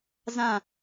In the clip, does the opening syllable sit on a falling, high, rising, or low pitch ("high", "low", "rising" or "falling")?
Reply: falling